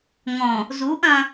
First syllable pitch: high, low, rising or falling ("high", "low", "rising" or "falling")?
low